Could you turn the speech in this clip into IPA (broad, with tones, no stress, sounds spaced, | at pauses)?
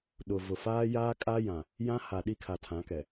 ɗ ʊ˨ v ʊ˨ f aː˦ j aː˦ kʼ a˦ j ã˨ | j ã˦ h a˨ ɗ i˦ kʰ a˨ tʰ ã˨˦ k ɛ˨